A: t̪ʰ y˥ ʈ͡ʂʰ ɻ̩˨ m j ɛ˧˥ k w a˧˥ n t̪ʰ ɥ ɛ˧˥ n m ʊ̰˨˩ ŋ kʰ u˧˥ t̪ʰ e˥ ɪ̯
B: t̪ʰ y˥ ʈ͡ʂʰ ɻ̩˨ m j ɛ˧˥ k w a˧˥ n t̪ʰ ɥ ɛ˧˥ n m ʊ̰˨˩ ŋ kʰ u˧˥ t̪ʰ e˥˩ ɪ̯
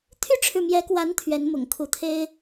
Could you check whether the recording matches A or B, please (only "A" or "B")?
A